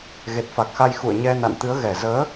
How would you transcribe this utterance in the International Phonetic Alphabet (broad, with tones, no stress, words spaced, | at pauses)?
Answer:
ɣe˨˩t̚fa˨˩k̚xa˧j xṵ˧˨ə̯ɲɛ˧ na̰˧˨nt̪ɨ˨˦ə̯ ɣɛ˨˩zəː˨˦